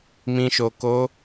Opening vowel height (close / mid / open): close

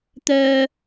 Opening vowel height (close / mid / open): mid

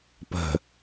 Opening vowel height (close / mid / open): mid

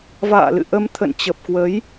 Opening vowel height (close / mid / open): open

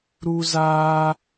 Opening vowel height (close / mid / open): close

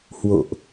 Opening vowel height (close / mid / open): mid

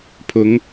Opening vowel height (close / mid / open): close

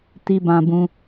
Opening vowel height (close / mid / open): close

